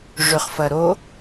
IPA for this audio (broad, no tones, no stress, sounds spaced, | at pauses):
ʐ ʏ χ f ɐ ɾ o